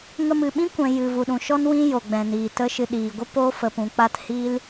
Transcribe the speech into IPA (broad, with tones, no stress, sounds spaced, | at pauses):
ŋ ə˧ m ɨ˨ ɓ ĩ˦ kʷ ɛ̃˨ j ɨ˨ v u˨ ɗ ũ˨ ʃ ɔ˦ n w ĩ˦ j o˨ ɡ͡b ɛ̃˨ n iː˨ t ə˦ ʃ ɨ˧ ɗ iː˨ ɡʷ ə˦ p o˦ f ə˧ p ũ˧ k͡p a˦ t h iː˦ l